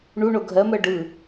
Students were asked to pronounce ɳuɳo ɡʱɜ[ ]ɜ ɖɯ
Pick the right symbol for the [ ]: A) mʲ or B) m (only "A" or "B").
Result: B